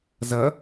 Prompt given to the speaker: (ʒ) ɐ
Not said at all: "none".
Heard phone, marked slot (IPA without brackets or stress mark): z